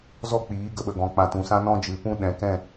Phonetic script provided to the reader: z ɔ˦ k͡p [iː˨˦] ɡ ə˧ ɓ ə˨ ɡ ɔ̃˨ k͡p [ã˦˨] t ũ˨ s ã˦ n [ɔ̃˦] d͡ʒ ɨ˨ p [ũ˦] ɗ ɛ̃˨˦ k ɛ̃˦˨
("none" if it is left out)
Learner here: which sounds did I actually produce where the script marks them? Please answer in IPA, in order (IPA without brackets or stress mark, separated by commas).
iː˨˦, ã˨, ɔ̃˦, ũ˦